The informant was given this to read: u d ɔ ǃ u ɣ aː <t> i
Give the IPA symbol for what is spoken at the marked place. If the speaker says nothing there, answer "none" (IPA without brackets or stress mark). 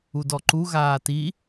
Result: t